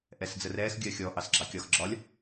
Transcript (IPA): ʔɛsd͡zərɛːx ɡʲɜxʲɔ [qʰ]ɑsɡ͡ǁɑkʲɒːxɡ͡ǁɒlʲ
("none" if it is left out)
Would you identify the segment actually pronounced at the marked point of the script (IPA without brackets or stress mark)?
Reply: ʔ